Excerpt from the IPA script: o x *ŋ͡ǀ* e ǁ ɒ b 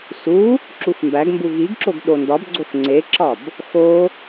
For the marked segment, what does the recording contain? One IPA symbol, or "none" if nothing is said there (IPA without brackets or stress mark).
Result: ŋ͡ǀ